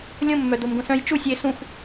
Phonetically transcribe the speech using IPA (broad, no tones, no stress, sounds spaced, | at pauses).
lʲ õ mː œ d o m ɡʷ ẽ s œ̃ j t͡ʃ u sʲ e s ũ xʷ